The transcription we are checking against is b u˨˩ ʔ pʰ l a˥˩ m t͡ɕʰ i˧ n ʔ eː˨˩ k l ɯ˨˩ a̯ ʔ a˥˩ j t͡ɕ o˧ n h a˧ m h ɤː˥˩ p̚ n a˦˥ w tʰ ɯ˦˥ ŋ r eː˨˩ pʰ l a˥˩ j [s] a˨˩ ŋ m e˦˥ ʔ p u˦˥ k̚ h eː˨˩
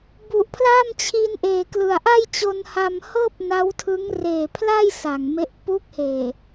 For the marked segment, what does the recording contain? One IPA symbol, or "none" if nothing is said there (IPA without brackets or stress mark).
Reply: s